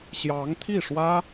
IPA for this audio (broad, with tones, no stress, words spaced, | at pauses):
ɕjɑ˧˥ŋt̪ʰi˥˩ʂwä˥